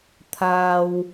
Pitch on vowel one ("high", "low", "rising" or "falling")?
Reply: high